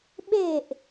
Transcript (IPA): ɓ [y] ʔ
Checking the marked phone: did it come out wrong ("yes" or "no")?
yes